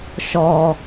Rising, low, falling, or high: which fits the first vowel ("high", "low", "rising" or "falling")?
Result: high